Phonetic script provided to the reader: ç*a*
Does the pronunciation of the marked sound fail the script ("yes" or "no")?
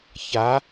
no